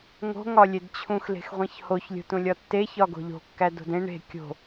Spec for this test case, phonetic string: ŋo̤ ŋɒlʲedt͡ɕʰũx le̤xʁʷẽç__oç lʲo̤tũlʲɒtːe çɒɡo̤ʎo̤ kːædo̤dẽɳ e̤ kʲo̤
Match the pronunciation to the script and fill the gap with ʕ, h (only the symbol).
h